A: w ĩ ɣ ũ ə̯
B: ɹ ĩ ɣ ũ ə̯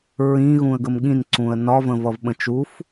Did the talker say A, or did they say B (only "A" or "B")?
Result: B